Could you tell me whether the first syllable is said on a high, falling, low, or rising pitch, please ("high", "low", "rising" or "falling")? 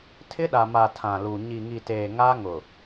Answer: high